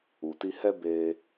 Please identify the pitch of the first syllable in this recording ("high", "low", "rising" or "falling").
low